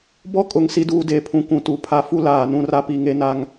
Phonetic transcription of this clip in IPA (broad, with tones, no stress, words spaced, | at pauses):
bɔ˦˨ kʼʊ˨ŋ si˦duː˦de˨˦pʰũ˨ kʷũ˨tu˨pʰa˦ fu˦ laː˨nũ˦ra˦pi˨˦ ŋe˦na˦ŋ